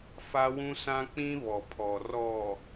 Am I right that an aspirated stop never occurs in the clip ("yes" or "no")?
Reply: no